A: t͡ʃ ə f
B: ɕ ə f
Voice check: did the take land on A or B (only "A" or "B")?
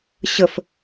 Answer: B